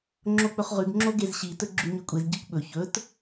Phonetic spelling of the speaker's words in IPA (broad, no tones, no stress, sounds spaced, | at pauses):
ŋ͡ǁ o k͡p ɵ χ ʁ ʉ ɡ ŋ͡ǁ o ɡ e z ɕ i t ɵ ɡ͡ǁ ʉ ɲ ʉ kʷʼ e z ɟ i kʷ ɓ ɵ ç ɵ t